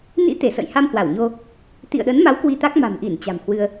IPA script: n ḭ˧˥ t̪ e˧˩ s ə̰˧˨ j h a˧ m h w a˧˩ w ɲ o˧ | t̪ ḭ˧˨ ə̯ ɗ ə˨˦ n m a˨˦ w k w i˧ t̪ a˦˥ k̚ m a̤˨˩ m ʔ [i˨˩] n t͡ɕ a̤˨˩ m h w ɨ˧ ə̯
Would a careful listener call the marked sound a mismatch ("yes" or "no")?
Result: yes